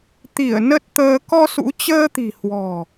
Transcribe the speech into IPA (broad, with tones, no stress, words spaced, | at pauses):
t̪i˧˩ə̯ nə˦˥t̚t̪əː˧ kɔ˧sṵ˧˥t͡ɕəː˧t̪i̤˨˩ hwɔ̤˨˩